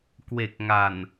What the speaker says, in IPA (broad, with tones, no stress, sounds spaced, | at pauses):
k w e˨˩ k̚ ŋ a˨˩ n